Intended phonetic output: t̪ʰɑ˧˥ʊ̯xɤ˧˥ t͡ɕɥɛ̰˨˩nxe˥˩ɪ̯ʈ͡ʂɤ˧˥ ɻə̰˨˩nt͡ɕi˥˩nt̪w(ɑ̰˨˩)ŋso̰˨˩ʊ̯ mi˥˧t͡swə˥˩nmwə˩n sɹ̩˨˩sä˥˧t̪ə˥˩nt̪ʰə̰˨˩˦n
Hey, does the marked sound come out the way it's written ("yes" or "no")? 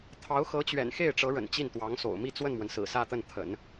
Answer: no